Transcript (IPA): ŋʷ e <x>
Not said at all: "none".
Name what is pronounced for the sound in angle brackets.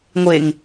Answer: ŋ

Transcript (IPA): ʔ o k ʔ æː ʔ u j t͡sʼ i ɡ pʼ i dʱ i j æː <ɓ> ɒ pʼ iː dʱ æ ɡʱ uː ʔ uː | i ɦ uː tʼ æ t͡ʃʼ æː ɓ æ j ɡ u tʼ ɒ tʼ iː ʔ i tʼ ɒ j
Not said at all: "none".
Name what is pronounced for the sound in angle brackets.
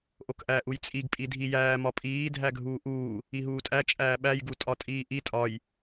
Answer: m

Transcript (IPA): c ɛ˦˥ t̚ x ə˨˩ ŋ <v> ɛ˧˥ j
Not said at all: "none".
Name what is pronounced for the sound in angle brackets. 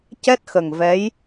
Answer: v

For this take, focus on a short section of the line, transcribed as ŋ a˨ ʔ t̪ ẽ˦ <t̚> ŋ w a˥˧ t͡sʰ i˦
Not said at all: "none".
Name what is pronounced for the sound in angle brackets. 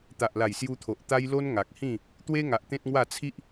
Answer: t̚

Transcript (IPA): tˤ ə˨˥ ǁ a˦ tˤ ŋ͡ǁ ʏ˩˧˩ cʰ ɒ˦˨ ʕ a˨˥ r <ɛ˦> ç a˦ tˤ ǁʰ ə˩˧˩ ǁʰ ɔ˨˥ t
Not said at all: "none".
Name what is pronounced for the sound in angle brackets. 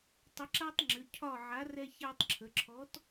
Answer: ɛ˦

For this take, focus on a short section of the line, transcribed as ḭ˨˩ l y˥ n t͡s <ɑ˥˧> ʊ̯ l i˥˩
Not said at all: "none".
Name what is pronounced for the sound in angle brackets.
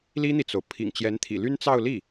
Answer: ɑ˥˧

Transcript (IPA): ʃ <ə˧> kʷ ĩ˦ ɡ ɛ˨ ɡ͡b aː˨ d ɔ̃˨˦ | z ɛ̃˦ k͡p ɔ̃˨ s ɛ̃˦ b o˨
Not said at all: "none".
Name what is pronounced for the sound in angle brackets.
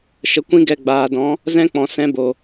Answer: ə˨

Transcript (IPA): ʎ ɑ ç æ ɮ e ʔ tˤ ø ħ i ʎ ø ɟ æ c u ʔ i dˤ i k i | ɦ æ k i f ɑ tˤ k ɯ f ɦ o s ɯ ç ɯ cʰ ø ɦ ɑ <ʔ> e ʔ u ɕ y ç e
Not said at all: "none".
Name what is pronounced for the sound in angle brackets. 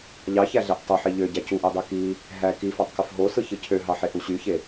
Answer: ħ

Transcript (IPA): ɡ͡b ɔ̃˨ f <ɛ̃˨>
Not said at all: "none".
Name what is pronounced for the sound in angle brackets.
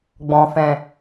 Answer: ɛ̃˨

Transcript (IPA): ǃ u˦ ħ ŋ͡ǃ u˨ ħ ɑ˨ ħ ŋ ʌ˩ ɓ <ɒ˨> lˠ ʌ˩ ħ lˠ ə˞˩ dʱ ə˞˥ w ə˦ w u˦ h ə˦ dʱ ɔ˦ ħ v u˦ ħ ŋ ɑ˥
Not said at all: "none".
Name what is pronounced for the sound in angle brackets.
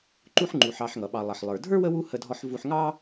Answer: ɑ˨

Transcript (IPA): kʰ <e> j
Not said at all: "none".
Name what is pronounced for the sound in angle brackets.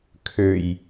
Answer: ø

